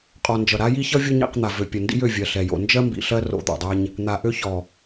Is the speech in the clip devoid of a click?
yes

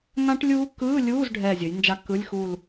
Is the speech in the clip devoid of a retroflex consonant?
no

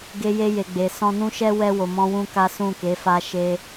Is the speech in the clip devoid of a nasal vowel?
no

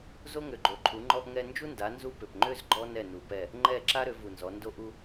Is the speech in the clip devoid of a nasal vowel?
yes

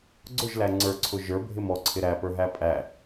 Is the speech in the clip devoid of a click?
no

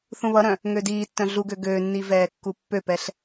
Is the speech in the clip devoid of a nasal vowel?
no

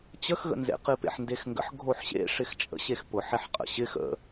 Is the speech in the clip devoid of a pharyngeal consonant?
no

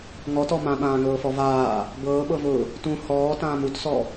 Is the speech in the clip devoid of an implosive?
no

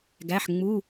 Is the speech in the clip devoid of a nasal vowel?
yes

